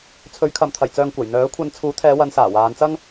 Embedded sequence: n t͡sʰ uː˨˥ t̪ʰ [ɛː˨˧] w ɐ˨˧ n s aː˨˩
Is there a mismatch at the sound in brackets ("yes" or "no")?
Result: no